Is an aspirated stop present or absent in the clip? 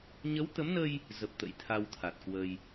present